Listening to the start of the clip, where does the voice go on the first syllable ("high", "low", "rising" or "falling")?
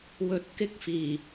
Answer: low